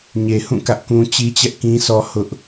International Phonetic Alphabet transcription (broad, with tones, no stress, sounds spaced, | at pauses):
ɲ e˨ h ũ˦˨ k ä˦ ʔ k ũ˦ t͡ɕ i˦ t͡ɕ ɛ˦ ʔ k ĩ˦ sʰ ɔ˦ h ʊ˦ ʔ